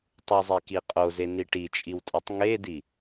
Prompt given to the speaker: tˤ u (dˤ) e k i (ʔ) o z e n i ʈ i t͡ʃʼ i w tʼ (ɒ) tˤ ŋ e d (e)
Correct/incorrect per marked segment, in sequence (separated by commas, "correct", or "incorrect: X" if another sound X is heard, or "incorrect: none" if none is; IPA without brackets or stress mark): incorrect: zˤ, incorrect: qʼ, correct, incorrect: i